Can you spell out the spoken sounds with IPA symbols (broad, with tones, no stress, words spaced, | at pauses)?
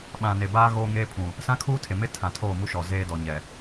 ɓã˨ne˨baː˦ ɣoː˦ŋeː˦pʰũ˨ | sã˦kʰuː˦tʰe˨ mɪ˦ tʰã˨tʰoː˦˨mu˦ʃɔ˨ zeː˦ dɔ˨ɲɛ˨